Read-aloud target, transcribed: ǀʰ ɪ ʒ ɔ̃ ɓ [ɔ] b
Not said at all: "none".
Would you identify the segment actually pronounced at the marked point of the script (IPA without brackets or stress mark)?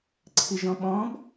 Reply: ɔ̃